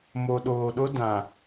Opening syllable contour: low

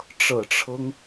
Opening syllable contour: low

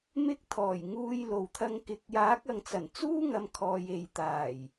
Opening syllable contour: high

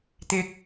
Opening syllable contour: high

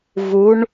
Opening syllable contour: rising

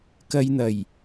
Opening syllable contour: low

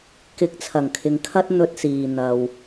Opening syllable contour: rising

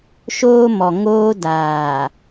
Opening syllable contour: high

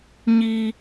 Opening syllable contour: high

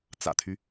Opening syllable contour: low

